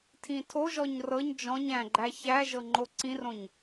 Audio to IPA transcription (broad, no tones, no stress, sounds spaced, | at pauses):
tʰ ĩ tʰ o ʒ ɔ ɲ r ɤ ɲ d͡ʒ ɔ̃ ɲ æ̃ ɡ͡ǃ æ ç æ ʒ ɤ ŋ͡ǃ o ǀ ĩ r õ ɲ